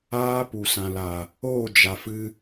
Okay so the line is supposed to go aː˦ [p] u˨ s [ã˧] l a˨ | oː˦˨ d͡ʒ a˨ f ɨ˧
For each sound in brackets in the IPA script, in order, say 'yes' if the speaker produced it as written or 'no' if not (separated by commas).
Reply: yes, no